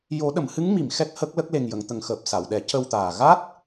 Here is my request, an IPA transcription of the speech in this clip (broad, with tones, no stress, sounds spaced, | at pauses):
j o˨˩˦ ɗ ə˨˩˨ m h ɨ˧˥ ŋ m i˨˩˨ m x ɛ˦˥ k̚ h ə˦˥ k̚ l ə˦˥ k̚ l e˨˩ ŋ j ə˨˩˨ ŋ t̪ ə˨˩ ŋ x əː˨˩ p̚ s a˨˩˨ w ɗ ɛ˨˩˦ c ə˧ w t̪ aː˨˩ ɣ a˦˥ t̚